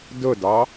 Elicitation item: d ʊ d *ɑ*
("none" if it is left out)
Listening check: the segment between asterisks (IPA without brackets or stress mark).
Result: ɑ